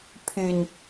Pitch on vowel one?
low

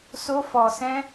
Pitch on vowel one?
high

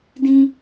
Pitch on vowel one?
high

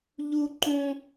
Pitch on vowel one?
high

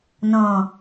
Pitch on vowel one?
low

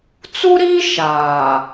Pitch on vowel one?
high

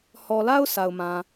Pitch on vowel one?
low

